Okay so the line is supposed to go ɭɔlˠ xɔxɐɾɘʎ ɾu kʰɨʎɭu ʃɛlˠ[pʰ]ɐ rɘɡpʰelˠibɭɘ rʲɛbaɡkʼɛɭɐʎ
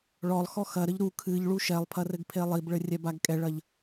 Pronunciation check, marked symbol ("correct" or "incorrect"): correct